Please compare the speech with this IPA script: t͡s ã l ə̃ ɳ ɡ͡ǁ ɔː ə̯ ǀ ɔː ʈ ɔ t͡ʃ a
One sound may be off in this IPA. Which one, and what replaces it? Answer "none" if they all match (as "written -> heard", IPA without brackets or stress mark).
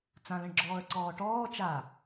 ɔ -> ɔː